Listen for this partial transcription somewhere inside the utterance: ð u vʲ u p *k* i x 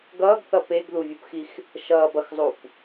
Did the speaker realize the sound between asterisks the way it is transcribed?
no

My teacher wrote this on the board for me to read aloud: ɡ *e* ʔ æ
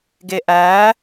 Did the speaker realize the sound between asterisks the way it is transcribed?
yes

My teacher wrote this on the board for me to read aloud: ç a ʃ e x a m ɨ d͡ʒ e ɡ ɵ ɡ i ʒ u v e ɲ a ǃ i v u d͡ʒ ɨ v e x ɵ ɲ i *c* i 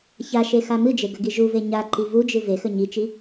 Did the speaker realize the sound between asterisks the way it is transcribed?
no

